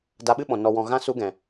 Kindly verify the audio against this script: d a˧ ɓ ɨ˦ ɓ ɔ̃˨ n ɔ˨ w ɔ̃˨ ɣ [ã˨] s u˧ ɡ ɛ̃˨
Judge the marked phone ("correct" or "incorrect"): incorrect